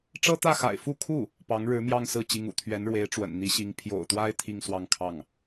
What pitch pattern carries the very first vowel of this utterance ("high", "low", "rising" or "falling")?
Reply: high